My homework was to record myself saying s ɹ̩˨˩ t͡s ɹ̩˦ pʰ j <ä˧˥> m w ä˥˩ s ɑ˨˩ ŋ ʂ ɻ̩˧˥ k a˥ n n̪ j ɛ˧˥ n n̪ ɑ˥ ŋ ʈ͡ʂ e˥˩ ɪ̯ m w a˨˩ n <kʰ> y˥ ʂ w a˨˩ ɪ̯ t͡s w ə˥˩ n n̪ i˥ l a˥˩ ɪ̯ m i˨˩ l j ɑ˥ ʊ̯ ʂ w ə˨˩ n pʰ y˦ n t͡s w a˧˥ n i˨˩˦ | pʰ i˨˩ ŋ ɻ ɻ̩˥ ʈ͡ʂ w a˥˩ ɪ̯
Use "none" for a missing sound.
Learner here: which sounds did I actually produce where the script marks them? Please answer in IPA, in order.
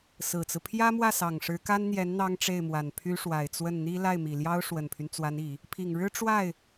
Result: ä˥, pʰ

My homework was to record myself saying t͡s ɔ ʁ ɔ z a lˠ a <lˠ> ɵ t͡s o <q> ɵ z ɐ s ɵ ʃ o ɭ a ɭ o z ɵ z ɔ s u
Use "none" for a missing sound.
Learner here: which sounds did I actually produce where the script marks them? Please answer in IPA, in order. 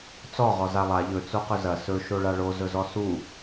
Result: ʎ, q

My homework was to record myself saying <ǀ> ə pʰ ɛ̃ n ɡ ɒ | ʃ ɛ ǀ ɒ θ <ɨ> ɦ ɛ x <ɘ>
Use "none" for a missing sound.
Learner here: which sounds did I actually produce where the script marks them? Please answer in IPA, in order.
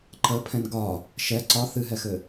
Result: ǃ, ɨ, ɘ

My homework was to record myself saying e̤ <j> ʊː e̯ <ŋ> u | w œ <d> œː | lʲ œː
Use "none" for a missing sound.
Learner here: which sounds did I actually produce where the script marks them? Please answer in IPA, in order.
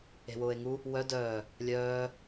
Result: w, ŋ, d

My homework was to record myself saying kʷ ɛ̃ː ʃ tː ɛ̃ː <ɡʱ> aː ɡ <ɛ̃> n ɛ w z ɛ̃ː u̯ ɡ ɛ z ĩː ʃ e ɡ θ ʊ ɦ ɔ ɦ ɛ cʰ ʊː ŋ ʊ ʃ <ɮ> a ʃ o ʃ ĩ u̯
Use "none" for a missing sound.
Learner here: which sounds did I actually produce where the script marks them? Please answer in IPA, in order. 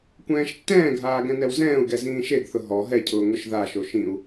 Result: ɡʱ, ɛ̃, ð

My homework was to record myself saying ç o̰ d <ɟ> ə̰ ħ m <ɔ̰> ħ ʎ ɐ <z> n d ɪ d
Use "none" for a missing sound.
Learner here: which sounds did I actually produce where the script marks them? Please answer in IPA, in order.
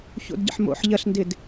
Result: ɟ, o̰, ɬ

